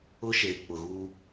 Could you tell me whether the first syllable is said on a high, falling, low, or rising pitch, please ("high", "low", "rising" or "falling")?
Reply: high